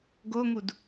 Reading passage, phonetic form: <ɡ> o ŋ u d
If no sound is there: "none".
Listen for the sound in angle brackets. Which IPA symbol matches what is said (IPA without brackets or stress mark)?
ɡ